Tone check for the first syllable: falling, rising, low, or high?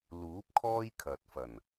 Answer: rising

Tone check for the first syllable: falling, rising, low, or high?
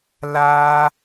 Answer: high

